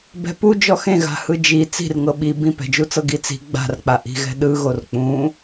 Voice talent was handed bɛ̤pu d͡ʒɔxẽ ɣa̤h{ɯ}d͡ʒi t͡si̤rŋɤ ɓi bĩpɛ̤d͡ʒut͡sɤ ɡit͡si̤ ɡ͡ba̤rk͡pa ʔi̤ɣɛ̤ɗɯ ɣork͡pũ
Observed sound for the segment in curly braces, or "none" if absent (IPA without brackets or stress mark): ɯ